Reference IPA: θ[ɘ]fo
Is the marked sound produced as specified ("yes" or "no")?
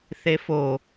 no